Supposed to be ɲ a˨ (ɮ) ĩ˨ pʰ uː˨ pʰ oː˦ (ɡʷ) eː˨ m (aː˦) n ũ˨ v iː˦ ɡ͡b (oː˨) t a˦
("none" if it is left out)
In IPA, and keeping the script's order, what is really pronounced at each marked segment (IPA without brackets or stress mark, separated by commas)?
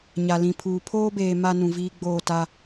l, b, a˦, oː˦˨